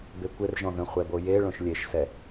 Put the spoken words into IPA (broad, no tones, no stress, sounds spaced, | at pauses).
b e kʷ ɪ r ʒ ɔ̃ ð ə̃ χʷ ɛ b o j e ɭ õ ʃ lʲ e ʃ s ɛ